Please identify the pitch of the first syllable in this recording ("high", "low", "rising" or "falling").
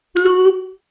high